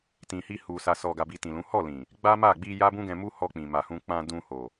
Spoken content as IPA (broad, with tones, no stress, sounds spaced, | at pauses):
t ĩ˨ h i˧ h u˨ s a˨ s ɔ˨ ɡ a˨ b i˨ t ĩ˨ l ũ˨˦ h ɔ˦˨ l ĩ˨ | ɡ͡b a˦ m a˦˨ ɡ͡b i˧ j a˦ b ũ˦ ɡ ɛ̃˧ m u˦ h ɔ˧ k͡p ĩ˨ m a˨ h ũ˧ k͡p ã˧ d ũ˧ h o˨